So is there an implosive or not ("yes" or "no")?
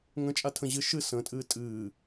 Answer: no